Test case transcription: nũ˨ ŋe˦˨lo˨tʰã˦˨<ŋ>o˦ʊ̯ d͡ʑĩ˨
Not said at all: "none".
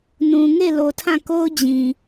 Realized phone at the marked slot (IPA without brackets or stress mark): k